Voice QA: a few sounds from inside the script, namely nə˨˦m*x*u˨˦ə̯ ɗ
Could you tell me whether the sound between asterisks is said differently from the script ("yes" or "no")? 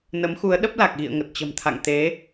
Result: no